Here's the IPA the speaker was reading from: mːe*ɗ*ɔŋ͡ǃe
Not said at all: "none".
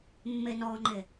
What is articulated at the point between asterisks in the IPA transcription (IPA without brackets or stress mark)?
n